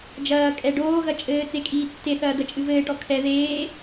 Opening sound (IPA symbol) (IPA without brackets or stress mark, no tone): d͡ʒ